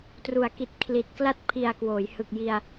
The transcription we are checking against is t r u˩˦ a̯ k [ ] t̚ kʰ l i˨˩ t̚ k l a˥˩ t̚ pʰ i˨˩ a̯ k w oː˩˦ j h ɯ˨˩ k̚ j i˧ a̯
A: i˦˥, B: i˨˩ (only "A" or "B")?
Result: B